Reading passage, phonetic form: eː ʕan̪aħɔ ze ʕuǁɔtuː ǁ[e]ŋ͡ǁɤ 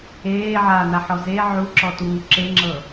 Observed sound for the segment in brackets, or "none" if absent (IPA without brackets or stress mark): e